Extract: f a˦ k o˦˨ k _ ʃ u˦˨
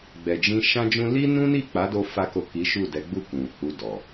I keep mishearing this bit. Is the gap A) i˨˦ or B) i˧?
A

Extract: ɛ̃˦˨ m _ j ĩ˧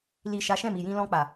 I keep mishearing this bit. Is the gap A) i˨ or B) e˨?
A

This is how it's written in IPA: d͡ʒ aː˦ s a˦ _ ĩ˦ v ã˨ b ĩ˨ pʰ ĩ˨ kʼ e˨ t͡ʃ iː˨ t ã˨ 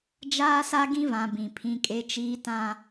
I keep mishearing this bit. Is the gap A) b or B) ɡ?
B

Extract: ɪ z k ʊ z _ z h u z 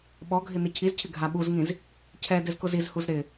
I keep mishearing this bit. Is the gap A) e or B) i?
B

